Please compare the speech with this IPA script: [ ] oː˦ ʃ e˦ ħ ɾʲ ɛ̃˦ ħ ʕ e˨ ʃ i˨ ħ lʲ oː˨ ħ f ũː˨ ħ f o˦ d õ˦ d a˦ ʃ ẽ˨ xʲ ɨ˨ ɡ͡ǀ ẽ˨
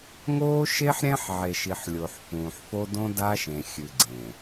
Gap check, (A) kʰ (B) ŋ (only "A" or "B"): B